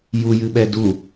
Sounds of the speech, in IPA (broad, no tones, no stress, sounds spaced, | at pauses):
j u j ɨ ɓ ɛ d u